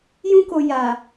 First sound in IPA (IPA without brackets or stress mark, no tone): j